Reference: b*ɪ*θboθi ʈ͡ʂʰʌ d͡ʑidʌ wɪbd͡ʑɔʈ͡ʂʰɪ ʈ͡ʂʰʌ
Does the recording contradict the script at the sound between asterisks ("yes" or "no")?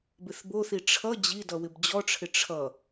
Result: no